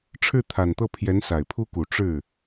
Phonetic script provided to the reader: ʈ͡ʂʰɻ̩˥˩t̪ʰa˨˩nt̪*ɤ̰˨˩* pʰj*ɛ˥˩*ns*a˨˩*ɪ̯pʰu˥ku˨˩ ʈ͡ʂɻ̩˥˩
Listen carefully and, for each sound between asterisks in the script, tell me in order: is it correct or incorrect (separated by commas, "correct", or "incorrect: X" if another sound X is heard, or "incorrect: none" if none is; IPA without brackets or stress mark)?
incorrect: ɤ˥˩, incorrect: ɛ˧˥, correct